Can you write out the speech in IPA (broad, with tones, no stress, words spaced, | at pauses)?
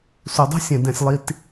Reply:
su˩dˤə̤˦sʲɛ̃˩ dɛ̃˩sʲlˠi˨t